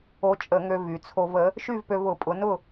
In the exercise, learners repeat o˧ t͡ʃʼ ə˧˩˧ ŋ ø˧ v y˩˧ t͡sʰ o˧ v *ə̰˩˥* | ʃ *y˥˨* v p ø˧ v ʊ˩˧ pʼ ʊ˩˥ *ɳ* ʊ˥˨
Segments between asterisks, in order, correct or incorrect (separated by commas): incorrect, correct, incorrect